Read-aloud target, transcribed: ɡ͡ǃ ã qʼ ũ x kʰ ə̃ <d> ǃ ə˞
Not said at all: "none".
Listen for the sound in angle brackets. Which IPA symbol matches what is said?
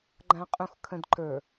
d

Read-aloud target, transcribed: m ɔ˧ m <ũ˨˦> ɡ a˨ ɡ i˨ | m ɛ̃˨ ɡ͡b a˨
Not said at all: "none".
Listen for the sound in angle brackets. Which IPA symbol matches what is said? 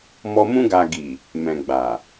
ũ˧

